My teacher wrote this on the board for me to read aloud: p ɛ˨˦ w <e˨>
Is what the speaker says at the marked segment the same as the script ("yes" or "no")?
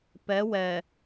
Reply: no